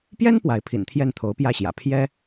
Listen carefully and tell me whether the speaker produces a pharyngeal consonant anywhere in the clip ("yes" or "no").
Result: no